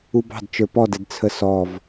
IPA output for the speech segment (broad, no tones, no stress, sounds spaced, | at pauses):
u b ɑ̤ d t͡ʃ ə˞ p ɔ d ɛ d t͡sʰ ə s ɔ v